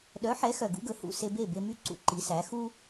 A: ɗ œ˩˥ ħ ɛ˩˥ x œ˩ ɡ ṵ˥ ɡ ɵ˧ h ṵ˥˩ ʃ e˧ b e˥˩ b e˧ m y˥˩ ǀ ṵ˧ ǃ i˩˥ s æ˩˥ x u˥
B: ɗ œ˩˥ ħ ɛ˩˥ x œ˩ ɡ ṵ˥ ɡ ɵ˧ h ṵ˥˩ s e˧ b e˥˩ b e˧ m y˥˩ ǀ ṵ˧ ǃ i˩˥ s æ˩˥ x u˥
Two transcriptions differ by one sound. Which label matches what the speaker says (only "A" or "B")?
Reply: B